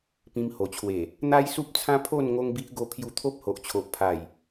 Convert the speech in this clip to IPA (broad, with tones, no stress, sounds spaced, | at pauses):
p ĩ˧ m h o˨˩ t͡ɕʰ w e˨˩ | n̪ a˦ j s u˦ p̚ t͡sʰ ã˦ pʰ o˥˧ n ŋ o˦ ŋ b i˦ ʔ ɡ o˧ pʰ j u˧ t̪ʰ o˦ p̚ h o˨ ʔ t͡ɕʰ o˨ ʔ pʰ a˨˩ j